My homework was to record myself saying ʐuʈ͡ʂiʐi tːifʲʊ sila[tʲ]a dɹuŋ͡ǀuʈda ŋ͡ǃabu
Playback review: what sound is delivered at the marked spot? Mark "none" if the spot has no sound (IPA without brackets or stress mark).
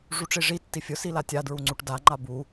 tʲ